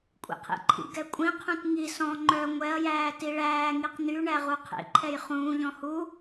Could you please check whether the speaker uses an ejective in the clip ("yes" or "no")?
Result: yes